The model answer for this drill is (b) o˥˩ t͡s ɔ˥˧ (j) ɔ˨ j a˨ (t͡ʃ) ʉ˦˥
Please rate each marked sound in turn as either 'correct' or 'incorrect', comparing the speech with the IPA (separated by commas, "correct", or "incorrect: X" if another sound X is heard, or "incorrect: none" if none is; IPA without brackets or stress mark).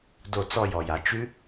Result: incorrect: d, correct, correct